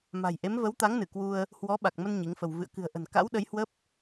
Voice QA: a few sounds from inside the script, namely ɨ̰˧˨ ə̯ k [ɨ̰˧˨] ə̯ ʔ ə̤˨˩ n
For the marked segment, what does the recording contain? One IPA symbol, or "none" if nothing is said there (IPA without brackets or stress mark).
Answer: ɨ̤˨˩